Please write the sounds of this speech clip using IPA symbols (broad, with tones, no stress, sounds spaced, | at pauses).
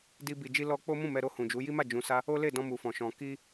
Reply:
d i˧ b i˨ d͡ʒ i˧ l ɔ˧ k͡p o˦ m ũ˦˨ m ɛ˧ ɾ o˧ h ũ˨ d͡ʒ u˨˦ j i˦ m a˦˨ d͡ʒ ũ˨ s a˧ | o˦ l e˦˨ d ɔ̃˧ m u˨ f ɔ̃˨ ʃ ɔ̃˨ k i˧